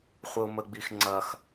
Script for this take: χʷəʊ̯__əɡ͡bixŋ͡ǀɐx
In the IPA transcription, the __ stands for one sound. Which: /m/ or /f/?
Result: m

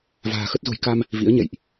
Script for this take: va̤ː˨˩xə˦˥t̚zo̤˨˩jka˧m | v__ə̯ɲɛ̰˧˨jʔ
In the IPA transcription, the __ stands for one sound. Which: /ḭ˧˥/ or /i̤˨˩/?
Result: ḭ˧˥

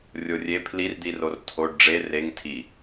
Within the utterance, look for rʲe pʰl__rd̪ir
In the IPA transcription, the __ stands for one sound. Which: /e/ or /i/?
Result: i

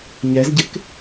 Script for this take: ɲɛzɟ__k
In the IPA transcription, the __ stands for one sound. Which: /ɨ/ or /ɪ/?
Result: ɪ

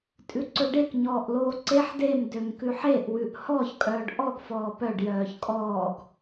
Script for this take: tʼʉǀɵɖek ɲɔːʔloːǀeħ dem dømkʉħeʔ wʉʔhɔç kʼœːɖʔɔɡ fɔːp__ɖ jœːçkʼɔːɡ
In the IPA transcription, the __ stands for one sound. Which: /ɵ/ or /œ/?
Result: œ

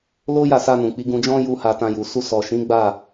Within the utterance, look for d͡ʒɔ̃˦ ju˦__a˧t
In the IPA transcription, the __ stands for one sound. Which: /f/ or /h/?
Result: h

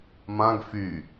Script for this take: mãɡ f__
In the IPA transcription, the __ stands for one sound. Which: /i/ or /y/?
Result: y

